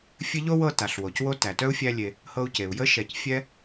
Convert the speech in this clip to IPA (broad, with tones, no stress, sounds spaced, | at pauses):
fʲ ɘ˦ ʎ o˥ w ɤ˦ t a˩ ɬ w o˩ c w o˦ t æ˩ t œ˥ u̯ fʲ æ˦ lʲ e˨ | h ɤ˦ u̯ c e˩ u̯ j ə˥ ʃ ɛ˨ c fʲ ɛ˦